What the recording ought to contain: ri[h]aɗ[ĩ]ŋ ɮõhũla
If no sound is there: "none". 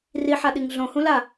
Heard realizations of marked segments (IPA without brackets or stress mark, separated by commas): ħ, i